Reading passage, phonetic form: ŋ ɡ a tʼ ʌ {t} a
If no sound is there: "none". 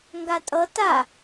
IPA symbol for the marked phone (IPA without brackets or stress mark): t